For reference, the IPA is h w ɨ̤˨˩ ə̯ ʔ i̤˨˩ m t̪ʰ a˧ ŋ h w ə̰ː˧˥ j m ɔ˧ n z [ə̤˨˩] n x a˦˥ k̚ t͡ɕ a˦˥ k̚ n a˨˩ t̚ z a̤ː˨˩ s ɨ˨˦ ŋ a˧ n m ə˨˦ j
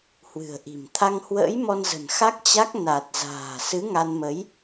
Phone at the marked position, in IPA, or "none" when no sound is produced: ə̤˨˩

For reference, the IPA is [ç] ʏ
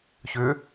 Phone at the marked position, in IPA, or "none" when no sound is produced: ç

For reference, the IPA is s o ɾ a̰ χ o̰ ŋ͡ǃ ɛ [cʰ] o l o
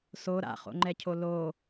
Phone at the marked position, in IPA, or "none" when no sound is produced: cʰ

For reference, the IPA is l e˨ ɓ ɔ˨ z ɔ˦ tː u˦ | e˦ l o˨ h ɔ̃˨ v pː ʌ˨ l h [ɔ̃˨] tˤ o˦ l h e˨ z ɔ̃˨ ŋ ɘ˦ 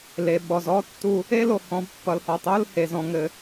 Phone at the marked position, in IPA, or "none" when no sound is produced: ɔ˨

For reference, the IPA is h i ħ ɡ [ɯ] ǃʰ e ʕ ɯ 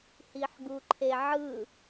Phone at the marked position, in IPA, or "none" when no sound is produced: u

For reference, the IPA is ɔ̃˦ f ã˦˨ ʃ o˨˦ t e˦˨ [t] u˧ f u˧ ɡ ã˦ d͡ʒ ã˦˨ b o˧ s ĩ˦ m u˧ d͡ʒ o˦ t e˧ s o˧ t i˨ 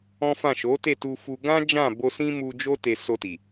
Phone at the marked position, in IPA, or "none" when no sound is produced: t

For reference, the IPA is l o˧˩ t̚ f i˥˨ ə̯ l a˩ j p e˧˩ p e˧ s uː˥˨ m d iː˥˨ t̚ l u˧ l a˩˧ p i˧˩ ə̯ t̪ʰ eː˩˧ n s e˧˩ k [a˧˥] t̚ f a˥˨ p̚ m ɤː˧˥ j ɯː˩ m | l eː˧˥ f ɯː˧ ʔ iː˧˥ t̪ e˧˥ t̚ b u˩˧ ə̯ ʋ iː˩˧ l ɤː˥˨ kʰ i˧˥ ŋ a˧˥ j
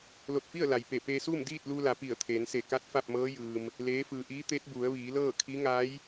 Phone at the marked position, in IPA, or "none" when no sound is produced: a˧˥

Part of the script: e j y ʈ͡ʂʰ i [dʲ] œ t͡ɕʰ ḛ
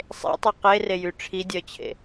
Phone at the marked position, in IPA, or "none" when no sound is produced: dʲ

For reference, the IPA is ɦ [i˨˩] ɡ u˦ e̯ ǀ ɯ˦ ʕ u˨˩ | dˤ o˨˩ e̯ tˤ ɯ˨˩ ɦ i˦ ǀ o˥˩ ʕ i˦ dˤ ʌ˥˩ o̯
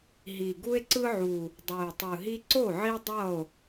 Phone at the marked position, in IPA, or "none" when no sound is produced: i˨˩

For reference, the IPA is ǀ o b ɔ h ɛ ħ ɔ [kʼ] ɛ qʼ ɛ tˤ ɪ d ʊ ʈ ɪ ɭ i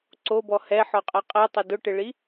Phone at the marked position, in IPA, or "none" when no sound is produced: qʼ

